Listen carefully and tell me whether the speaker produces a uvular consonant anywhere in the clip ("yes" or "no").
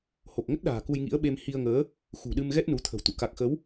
no